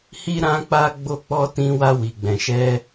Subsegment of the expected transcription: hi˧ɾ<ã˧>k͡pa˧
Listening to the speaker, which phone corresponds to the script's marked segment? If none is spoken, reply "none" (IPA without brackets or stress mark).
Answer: ã˧